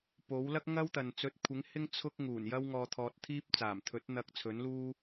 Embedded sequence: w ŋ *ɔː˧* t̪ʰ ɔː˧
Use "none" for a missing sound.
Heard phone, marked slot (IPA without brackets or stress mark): ɔː˧